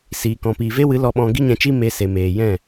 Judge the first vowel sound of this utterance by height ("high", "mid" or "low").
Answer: high